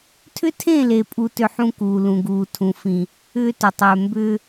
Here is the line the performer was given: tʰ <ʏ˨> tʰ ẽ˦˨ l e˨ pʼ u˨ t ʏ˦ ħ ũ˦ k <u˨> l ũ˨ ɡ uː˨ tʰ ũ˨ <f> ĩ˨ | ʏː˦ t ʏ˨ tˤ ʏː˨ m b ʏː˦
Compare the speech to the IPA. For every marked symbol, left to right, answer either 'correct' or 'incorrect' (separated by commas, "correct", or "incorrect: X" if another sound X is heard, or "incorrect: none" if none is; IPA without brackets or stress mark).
incorrect: ʏ˦, incorrect: uː˨, correct